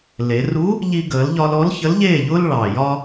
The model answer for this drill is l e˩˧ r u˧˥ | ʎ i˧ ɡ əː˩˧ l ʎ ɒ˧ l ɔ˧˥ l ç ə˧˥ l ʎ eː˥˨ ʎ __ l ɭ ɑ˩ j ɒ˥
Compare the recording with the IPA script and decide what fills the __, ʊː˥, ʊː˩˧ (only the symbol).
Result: ʊː˥